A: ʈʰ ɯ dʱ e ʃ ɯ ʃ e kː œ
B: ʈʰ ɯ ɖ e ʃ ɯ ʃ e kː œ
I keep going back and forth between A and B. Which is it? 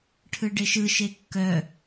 B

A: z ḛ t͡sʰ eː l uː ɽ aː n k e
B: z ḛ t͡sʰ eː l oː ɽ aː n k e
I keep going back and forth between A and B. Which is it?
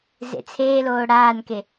B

